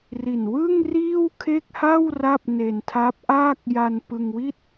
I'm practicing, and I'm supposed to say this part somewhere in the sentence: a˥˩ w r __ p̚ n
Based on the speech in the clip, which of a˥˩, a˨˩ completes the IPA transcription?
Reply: a˥˩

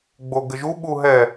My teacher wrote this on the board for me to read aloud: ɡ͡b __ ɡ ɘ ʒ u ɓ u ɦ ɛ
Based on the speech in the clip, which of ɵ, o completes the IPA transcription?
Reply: o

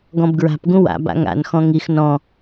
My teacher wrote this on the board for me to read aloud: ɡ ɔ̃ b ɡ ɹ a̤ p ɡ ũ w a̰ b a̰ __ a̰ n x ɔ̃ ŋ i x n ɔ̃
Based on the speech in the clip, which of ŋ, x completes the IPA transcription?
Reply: ŋ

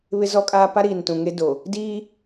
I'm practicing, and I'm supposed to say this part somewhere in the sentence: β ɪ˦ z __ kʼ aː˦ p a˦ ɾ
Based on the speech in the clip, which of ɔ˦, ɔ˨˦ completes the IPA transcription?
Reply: ɔ˦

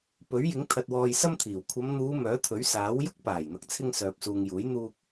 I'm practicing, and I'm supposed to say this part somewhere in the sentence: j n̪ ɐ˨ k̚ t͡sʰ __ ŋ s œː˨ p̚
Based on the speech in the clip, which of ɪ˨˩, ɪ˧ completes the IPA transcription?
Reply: ɪ˧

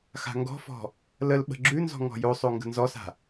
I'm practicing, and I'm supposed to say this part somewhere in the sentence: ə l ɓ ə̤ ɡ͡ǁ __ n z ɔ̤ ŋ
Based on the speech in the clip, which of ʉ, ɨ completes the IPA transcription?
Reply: ʉ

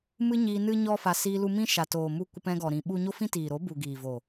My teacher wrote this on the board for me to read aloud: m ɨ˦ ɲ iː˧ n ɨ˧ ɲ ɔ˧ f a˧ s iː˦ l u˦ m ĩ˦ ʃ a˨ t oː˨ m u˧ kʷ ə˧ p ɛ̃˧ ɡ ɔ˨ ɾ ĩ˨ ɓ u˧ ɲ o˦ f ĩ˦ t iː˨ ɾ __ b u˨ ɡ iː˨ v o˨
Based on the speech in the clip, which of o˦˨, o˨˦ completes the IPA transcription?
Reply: o˨˦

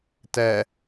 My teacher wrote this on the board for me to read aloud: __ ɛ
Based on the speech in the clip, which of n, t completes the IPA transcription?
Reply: t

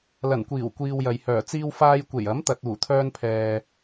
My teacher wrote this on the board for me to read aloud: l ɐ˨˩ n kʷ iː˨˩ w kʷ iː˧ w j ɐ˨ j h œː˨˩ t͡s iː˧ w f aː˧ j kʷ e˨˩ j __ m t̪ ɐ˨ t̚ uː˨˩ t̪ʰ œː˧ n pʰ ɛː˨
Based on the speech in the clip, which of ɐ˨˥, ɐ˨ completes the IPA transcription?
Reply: ɐ˨˥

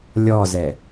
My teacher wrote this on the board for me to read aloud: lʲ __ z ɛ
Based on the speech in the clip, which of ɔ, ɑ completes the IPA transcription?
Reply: ɔ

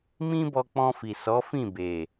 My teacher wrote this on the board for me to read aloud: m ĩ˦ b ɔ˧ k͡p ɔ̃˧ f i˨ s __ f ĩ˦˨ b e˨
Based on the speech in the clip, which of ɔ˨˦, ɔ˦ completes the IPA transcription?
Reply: ɔ˨˦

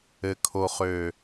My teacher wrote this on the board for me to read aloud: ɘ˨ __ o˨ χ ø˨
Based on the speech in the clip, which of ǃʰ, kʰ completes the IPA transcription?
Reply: kʰ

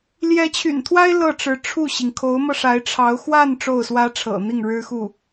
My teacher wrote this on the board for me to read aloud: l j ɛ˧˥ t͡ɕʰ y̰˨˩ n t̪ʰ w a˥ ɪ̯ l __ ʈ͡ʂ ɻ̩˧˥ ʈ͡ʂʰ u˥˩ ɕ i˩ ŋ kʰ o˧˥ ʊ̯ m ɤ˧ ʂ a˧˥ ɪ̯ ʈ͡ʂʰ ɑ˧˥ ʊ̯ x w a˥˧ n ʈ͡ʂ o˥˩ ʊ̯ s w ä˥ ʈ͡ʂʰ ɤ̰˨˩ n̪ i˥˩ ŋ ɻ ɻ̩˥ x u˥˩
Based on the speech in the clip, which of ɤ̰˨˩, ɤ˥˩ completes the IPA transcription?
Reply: ɤ˥˩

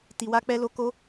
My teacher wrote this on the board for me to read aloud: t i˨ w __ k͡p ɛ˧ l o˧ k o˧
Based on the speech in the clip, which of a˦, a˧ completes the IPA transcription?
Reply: a˧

